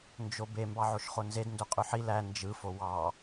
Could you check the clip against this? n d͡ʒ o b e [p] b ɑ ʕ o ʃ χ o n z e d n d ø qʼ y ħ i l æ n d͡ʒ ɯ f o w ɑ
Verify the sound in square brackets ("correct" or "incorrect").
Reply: incorrect